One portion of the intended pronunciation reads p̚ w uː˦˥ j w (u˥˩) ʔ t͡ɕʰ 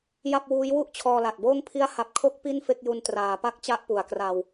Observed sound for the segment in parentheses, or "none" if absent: u˥˩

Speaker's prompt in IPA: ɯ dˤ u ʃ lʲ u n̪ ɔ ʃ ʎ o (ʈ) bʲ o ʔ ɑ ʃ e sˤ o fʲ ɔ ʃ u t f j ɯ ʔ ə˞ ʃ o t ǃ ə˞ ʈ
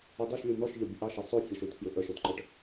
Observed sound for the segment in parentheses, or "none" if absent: none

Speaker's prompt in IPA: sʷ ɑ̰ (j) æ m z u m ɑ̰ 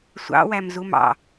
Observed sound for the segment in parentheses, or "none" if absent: w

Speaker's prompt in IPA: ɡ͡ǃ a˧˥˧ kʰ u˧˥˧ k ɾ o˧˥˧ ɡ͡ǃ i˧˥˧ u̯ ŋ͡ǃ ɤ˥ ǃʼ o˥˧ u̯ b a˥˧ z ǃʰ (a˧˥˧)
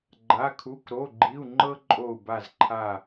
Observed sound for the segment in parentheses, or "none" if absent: a˥˧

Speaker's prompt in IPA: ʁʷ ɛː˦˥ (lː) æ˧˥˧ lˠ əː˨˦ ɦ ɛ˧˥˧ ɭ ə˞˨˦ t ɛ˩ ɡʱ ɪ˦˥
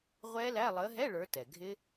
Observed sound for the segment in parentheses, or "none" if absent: l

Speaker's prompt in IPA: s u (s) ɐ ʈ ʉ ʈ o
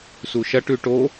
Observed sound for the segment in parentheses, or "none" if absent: ʃ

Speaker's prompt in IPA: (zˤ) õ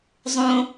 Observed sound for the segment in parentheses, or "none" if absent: zˤ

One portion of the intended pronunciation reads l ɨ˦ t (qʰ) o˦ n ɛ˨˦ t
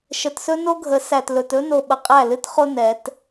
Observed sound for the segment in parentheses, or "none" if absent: χ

